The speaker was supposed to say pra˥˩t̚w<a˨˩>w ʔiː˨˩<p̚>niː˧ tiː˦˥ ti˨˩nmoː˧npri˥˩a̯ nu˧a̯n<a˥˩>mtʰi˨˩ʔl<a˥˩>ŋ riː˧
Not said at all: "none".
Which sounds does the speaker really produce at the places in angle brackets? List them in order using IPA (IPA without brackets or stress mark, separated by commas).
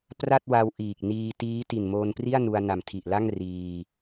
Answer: a˧, k̚, a˨˩, a˥˩